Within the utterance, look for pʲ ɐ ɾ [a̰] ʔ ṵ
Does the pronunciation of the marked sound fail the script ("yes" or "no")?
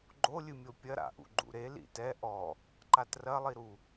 no